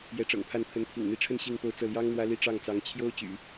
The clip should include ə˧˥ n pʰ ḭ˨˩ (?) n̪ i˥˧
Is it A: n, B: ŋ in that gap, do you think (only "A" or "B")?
B